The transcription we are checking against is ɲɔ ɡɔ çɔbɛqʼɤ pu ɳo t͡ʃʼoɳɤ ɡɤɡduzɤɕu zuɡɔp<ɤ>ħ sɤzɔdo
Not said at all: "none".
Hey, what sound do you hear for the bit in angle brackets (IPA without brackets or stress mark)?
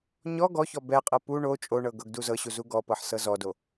ɤ